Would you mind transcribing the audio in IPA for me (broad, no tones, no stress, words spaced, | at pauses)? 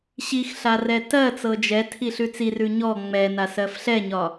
ɕixɬa rɛtɜt͡sɤ d͡ʒɛtʰi ɬʉt͡sirʉ ɲɔ ŋ͡mɛna sɜfɬɛɲɒ